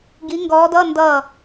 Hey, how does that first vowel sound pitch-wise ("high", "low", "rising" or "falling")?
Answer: rising